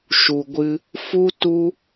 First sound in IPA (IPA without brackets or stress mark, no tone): ʃ